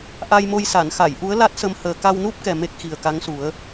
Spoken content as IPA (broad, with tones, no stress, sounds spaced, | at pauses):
ʔ a˧ j m o˧ j s a˨˩˨ n x a˨˩˨ j ʔ u˧˥ ə̯ l a˦˥ t̚ s ə˧ m h əː˨˩ k a˧ w n u˦˥ p̚ k ɛ˨˩ m e˦˥ k̚ x i˨˩ ə̯ k a˧˥ ŋ s u˨˩˦ ə̯